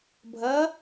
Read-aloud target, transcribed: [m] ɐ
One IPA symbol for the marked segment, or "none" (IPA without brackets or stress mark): bʱ